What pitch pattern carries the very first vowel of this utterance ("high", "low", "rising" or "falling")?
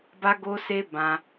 high